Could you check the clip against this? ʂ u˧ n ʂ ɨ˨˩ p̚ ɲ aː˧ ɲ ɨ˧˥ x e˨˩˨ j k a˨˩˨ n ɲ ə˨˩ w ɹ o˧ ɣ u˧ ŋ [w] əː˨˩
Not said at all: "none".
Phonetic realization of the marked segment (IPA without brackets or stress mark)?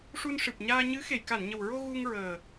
ɹ